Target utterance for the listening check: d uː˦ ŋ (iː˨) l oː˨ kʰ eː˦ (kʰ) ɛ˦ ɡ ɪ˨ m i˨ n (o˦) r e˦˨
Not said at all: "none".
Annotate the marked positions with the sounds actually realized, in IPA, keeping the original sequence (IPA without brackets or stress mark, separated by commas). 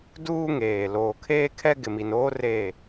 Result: eː˨, kʰ, oː˦